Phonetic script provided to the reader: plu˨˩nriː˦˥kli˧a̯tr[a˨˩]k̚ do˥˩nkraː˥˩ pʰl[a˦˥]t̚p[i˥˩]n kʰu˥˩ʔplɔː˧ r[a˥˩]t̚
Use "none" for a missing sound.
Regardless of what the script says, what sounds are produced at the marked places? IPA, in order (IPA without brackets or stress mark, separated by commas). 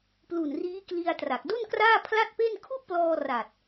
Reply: a˨˩, a˥˩, e˥˩, a˨˩